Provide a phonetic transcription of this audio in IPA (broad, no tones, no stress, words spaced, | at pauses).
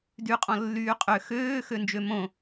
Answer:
dyqʼɔ̃ lːyːqʼø xøːxønd͡ʒø mõ